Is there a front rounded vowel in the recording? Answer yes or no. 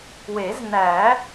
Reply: no